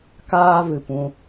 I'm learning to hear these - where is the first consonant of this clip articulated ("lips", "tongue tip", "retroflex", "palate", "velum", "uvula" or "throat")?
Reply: velum